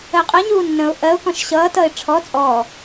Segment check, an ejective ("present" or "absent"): present